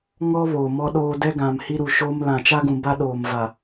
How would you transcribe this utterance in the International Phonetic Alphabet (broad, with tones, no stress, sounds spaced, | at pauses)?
ŋ ɔ˦ β oː˨ m ɔ˦ ɗ oː˦ d ɛ˦ ɡ ã˨ m h i˦ ɾ u˨ ʃ oː˦ m l ã˨ t͡ʃ a˦ ɡ ũ˨ b a˦ ɗ oː˨ m v a˨